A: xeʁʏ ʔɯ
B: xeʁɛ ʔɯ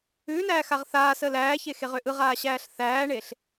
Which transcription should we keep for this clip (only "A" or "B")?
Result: A